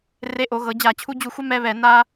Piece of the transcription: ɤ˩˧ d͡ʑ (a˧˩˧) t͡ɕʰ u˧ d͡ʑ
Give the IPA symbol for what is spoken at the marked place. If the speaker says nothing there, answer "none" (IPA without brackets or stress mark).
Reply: a˧˩˧